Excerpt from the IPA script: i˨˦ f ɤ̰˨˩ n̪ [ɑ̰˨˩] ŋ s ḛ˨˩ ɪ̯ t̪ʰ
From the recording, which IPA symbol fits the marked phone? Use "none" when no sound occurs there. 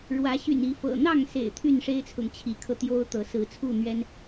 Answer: ɑ˥˨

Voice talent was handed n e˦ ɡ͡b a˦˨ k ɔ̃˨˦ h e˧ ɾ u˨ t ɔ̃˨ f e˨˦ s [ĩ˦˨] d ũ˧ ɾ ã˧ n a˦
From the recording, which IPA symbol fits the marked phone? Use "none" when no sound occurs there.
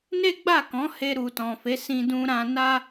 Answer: ĩ˧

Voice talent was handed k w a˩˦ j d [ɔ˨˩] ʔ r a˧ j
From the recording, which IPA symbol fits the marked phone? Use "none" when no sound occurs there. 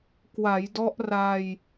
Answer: ɔ˦˥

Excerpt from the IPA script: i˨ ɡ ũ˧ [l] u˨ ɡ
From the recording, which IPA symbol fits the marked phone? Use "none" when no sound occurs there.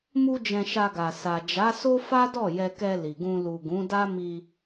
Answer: l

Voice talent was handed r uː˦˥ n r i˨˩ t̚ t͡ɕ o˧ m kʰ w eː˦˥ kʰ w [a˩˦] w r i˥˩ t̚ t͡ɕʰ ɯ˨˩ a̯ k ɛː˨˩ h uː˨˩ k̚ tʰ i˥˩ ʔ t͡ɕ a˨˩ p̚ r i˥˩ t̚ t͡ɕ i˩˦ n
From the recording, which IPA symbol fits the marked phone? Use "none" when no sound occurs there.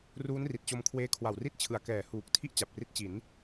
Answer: a˨˩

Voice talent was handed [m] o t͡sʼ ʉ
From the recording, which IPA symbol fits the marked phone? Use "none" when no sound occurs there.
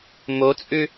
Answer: m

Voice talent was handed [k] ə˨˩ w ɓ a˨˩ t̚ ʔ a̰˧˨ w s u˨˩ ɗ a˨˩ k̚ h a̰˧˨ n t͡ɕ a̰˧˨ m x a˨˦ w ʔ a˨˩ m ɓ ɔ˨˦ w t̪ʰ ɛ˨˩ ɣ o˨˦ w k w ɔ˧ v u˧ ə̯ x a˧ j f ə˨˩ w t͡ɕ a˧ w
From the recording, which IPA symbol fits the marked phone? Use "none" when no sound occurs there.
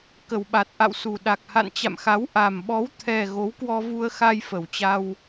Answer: k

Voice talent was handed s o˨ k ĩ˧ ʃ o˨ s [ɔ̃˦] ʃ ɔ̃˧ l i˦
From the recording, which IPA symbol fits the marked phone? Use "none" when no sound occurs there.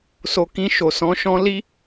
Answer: ɔ̃˨˦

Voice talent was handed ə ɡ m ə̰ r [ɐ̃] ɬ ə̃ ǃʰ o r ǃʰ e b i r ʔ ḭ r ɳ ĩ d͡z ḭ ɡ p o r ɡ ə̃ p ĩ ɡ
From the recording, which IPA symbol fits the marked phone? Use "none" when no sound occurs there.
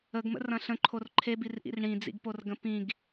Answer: ɐ̃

